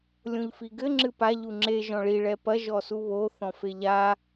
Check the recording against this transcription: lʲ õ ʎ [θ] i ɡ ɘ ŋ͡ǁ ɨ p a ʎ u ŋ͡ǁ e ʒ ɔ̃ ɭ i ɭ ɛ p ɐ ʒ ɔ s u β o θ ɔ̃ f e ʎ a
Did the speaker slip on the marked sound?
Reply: yes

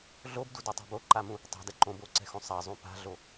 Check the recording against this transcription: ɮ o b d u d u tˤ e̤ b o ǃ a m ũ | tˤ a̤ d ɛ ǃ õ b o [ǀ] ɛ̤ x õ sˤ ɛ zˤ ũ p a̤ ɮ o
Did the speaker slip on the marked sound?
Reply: no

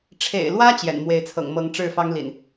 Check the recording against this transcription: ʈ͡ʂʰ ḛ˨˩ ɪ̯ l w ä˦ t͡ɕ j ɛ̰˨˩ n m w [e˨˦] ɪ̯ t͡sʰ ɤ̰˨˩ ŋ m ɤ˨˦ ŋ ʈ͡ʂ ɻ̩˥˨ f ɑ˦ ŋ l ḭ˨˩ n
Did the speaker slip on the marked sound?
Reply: no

